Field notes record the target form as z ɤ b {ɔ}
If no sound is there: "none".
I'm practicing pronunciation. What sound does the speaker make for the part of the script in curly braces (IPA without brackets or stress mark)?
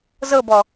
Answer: ɔ